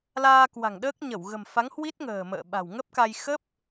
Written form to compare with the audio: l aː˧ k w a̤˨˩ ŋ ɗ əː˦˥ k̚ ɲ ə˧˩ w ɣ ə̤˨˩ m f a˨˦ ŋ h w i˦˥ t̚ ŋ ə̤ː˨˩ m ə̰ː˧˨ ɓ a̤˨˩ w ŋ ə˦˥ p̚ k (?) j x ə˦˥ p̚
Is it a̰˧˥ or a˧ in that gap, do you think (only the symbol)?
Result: a˧